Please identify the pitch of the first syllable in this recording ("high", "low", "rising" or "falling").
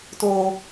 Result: low